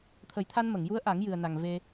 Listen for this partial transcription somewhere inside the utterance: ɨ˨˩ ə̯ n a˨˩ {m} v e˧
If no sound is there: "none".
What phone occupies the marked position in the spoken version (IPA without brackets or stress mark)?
ŋ